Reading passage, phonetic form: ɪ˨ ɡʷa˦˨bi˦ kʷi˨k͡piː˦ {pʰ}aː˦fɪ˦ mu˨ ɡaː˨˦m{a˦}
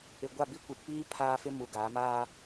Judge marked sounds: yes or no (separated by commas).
yes, no